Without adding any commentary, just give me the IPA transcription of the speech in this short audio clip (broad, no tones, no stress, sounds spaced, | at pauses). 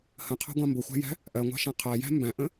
h ə̃ qʰ ɑ̤ ɡʷ ɑ̃ m b ʊ xʷ æ̤ j æ̤ | ʔ ɜ ŋʷ ɑ̤ ʃ æ̃ qʰ æ j æ̤ m b æ̃ ʔ ə̃